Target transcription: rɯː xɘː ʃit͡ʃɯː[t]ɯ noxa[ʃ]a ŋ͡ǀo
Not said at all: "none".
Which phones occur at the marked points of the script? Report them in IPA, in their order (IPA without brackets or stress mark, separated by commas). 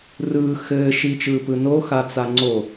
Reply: p, t͡s